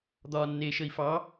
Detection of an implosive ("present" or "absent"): absent